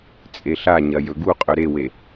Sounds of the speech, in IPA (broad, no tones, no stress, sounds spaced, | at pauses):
t͡sʼ e ɬ a ɲ ɐ j ɵ ɡ u qʼ ɵ ɾ e w e